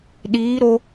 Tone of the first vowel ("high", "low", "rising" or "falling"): rising